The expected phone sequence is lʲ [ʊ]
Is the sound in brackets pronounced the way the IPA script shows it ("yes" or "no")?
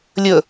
no